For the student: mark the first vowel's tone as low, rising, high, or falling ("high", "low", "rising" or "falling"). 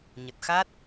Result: low